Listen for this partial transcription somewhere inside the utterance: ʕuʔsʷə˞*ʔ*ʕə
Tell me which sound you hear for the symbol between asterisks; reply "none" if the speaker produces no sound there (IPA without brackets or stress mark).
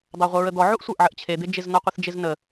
ʔ